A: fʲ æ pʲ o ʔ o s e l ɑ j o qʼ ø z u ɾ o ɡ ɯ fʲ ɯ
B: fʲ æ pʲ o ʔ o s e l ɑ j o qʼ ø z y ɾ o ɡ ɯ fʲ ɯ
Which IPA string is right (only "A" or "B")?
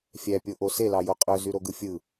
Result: B